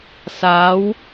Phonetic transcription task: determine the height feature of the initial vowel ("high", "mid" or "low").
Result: low